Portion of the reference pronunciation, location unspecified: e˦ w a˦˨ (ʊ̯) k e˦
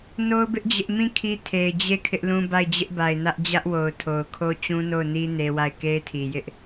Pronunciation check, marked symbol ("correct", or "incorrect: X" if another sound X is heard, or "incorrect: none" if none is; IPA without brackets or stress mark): incorrect: ɪ̯